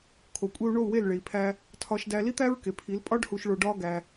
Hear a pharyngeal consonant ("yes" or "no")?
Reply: no